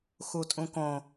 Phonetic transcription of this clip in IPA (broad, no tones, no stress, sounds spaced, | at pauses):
x u tʼ ũ k õ